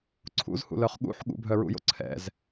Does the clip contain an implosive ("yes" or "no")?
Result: yes